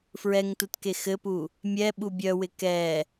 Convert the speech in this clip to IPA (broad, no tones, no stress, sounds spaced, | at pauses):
f ɹ ɛ ŋ t u t k e x ɘ p u | mʲ ɛ ɓ u bʲ œ w ɪ k ɛ